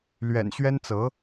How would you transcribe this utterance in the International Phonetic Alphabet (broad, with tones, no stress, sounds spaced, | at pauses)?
l ɥ ɛ̰˨˩ n ɕ ɥ ɛ˥ n t͡s ɤ˧˥